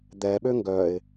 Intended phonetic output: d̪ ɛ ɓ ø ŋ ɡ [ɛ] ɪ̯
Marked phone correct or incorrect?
incorrect